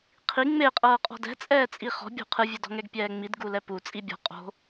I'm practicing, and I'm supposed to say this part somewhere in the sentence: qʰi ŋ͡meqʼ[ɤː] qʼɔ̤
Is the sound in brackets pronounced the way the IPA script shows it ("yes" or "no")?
yes